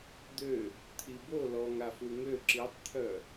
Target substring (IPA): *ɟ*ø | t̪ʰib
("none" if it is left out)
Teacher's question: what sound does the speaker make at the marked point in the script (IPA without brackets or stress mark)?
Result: d̪